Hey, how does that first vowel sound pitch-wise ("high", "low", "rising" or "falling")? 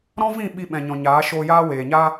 high